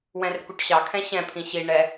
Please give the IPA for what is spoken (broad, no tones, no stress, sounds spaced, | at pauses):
w ɛ̃ r k u ʈ ɕ ɑ kʰ ɛ̃ ɕ ɛ̃ pʰ ĩ ɕ i ɳ ɛ